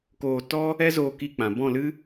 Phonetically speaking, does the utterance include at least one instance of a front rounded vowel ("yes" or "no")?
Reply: no